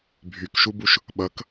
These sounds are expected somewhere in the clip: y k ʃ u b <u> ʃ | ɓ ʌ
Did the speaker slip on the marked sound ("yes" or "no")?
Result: no